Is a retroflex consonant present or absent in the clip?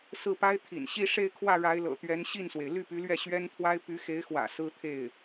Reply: present